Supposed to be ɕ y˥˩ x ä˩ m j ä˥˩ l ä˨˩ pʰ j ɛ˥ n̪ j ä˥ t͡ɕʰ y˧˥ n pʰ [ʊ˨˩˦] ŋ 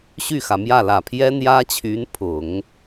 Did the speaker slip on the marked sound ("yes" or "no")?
no